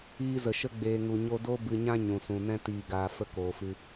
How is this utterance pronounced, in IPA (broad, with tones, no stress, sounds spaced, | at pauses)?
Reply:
iː˧ z ə˨ ʃ ə˧ ɡ͡b eː˨ ŋ u˨ ɲ o˧ d o˦ b ɨ˧ ɲ ã˦ ɲ ũ˨ s ũ˨ n ɛ̃˦ t iː˨ ɡ aː˨ f ə˧ k oː˨ f ɨ˧